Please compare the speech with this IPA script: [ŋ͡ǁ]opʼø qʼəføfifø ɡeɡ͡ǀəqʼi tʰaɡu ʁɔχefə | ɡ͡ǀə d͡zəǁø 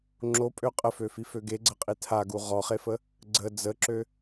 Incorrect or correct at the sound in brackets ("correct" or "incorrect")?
correct